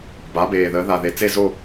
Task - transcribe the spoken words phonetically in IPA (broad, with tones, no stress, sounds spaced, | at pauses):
b a˩˥ b eː˨˩ ð əː˩˥ ð a˨˩ ð e˨˩ t͡s e˥˨ z o˥˨